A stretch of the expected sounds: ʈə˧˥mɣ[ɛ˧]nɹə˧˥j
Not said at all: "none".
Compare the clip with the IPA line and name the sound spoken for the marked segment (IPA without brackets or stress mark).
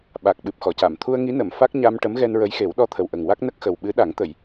ɛ˧